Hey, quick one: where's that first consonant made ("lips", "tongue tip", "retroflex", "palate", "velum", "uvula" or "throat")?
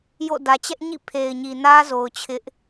palate